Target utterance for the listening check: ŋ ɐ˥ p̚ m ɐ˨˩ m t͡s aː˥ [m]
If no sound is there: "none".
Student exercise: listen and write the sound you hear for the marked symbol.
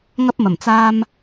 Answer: m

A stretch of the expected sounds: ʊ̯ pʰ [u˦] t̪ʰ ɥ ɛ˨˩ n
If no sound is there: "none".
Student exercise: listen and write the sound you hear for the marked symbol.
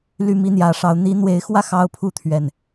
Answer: u˦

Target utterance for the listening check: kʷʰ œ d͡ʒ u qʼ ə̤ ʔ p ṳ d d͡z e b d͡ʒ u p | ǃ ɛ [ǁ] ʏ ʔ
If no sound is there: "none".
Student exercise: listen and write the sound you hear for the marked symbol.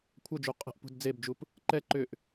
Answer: ǃ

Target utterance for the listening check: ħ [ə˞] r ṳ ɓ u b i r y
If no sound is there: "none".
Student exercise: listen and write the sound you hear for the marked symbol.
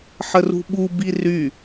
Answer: ə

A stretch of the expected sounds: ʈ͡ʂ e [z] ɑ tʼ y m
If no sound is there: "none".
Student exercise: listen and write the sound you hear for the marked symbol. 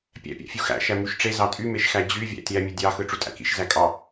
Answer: z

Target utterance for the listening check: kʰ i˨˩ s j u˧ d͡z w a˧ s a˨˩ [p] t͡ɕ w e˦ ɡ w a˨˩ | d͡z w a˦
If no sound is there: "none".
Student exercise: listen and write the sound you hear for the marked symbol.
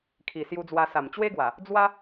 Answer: m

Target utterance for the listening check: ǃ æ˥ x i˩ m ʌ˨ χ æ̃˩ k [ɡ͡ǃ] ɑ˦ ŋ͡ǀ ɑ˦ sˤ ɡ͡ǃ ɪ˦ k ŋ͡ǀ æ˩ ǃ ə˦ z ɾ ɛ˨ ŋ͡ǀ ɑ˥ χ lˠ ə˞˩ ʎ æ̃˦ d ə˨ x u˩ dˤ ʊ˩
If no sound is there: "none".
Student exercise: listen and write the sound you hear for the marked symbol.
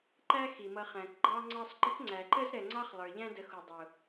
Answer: ɡ͡ǃ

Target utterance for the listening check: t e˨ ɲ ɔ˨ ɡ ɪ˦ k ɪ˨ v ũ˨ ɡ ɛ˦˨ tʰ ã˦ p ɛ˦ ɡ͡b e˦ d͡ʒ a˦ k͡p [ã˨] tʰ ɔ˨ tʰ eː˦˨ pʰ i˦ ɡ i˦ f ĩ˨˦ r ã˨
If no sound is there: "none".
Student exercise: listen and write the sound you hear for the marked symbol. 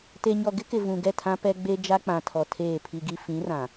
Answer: ã˨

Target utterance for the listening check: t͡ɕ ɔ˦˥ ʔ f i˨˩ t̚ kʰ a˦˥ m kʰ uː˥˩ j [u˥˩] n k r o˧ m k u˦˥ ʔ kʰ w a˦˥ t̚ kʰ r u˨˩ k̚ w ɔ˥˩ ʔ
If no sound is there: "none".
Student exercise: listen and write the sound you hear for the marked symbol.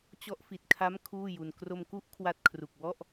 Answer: u˧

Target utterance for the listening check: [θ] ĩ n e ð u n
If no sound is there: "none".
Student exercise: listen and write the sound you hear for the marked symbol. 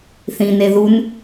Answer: θ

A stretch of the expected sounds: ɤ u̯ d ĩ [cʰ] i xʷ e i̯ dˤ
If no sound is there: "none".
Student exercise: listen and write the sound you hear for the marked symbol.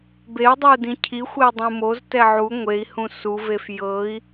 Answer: cʰ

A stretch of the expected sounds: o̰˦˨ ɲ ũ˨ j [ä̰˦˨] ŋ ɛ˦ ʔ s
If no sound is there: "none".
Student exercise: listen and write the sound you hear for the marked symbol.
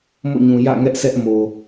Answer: ä̰˦˨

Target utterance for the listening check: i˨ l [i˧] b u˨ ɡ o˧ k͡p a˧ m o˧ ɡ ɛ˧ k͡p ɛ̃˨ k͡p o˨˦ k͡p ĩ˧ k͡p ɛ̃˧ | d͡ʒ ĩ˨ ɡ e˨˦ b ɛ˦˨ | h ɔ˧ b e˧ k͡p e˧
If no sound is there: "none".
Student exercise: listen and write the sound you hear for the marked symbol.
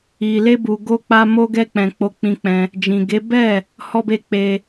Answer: e˧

